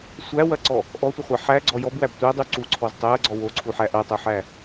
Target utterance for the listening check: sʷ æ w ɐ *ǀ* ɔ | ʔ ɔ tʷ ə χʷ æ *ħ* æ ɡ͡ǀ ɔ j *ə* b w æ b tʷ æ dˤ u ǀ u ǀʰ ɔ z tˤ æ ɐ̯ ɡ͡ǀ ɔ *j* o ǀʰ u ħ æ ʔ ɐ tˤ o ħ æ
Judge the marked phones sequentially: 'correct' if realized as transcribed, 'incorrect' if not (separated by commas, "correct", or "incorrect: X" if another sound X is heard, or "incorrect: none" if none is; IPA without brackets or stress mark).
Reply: correct, correct, incorrect: ɔ, incorrect: w